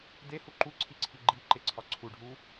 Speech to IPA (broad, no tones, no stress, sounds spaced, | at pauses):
d e h u ǃ u ǀʰ i ǀʰ i ɡ͡ǃ i ǃ e ǀʰ ɒ ǀʰ u ɖʱ u